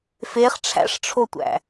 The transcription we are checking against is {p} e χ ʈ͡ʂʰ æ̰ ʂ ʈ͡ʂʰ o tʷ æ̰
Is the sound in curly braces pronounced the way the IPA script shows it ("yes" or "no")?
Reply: no